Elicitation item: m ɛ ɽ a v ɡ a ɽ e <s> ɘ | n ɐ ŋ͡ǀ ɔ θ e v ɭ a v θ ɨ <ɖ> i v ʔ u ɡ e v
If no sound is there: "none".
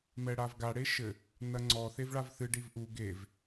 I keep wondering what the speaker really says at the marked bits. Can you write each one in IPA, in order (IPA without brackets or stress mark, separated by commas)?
ʃ, ɖ